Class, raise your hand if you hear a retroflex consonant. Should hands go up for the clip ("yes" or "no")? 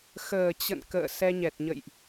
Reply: no